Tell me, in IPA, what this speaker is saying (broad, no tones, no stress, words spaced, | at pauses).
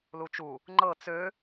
lut͡ʃu | ŋ͡ǃɤ t͡sø